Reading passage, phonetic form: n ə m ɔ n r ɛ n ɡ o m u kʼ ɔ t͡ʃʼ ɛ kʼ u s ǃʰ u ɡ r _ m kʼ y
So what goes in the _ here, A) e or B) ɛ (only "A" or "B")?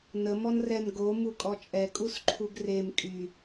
A